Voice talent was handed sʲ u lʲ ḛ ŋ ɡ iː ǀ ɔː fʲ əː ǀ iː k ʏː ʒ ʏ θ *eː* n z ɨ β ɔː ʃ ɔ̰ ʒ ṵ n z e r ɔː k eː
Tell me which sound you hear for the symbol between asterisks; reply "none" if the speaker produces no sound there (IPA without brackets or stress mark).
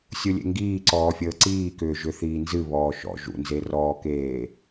iː